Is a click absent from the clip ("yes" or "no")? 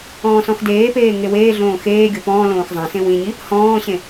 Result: yes